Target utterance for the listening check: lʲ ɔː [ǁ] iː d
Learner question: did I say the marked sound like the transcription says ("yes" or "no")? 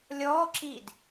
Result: yes